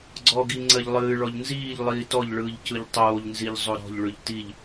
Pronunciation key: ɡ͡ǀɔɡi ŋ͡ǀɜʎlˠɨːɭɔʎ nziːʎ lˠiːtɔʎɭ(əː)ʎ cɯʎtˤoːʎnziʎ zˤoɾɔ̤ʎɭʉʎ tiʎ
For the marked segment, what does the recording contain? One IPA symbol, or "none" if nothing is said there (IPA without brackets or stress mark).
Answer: ɯː